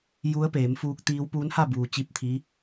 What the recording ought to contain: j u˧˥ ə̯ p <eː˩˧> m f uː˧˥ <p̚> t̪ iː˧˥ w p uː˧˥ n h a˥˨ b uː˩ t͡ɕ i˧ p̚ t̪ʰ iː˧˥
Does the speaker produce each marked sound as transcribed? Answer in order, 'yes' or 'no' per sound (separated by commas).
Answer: yes, no